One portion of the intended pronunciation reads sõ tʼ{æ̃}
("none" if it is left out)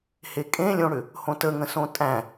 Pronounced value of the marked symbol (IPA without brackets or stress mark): æ̃